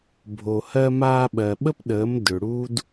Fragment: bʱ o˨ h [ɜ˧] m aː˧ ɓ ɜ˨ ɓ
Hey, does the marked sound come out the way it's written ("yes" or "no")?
yes